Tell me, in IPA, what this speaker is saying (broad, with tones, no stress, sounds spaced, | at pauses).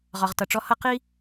ʁ ɒ˩ ʁ t ʌ˩ ʈ͡ʂ ɔ˧ h ʌ˥ q i˥